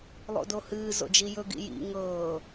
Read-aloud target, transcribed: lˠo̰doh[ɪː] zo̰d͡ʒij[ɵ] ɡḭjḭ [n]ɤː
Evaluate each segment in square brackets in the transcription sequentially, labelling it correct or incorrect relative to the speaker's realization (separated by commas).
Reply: incorrect, correct, incorrect